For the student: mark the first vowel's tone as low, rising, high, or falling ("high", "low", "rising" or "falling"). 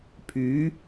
rising